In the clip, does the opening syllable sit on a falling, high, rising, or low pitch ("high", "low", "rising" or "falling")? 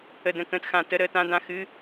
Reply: falling